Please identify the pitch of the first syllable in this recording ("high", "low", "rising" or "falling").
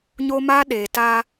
high